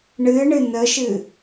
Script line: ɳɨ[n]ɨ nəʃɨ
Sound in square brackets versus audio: incorrect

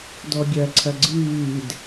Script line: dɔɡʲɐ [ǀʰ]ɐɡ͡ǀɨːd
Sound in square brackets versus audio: correct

